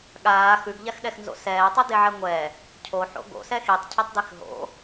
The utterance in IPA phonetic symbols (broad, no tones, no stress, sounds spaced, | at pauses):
ɠ aː x ʉ ɡ ʎ a x ɗ ɛ x n z o̰ s ɛː tˤ ʉ d e ʕ ɛ ŋʷ ɛ | cʰ o ħ o̰ ɡ o̰ s ɛ x i tˤ cʰ ɘ tˤ d i x ɦ o̰